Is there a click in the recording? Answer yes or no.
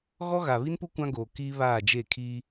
no